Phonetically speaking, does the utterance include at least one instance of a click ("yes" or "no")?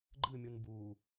yes